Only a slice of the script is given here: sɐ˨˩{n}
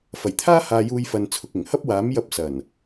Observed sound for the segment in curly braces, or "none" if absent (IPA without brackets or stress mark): n